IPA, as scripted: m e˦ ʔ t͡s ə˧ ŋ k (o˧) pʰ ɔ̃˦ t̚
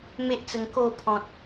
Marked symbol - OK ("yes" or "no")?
yes